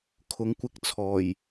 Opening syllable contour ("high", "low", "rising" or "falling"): rising